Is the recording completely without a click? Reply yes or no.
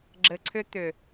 no